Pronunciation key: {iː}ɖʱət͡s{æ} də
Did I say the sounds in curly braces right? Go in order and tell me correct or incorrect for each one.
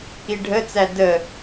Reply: incorrect: i, correct

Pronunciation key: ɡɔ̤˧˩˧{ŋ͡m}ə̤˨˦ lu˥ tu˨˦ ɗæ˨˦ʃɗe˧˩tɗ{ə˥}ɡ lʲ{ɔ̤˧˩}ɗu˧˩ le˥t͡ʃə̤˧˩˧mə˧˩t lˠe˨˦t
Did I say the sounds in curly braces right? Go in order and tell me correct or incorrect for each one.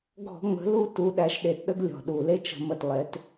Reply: correct, correct, correct

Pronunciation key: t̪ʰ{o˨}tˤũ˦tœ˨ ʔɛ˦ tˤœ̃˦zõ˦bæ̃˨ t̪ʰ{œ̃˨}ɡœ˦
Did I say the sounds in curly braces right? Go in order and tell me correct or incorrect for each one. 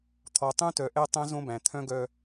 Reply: incorrect: ɔ˨, incorrect: œ̃˦

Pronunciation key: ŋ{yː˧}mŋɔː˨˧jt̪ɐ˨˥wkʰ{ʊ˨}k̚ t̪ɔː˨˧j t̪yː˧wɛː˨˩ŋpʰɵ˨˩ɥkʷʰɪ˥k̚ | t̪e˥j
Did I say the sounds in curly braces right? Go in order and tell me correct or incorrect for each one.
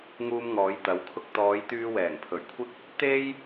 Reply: incorrect: uː˧, incorrect: ʊ˧

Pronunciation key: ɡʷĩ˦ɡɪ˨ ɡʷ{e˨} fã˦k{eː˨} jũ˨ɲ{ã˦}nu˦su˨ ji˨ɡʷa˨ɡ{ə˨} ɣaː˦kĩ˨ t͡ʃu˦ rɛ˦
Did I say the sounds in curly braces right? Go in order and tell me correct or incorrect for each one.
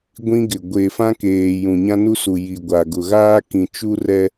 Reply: correct, correct, correct, incorrect: ʊ˨

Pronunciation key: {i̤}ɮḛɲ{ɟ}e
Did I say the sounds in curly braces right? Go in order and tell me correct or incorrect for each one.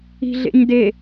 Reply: correct, incorrect: d

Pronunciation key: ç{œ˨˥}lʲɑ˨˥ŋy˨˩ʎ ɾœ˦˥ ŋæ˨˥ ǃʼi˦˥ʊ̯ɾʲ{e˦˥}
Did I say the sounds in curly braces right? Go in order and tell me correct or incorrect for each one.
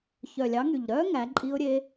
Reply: incorrect: œ˨˩, correct

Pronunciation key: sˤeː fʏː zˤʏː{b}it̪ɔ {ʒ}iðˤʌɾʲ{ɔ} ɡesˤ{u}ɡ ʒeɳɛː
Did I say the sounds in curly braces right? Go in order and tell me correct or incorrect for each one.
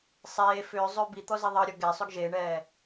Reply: correct, incorrect: z, correct, incorrect: ʏ

